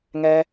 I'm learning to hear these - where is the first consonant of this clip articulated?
velum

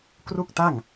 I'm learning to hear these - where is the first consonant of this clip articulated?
velum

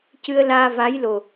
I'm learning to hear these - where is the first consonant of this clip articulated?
palate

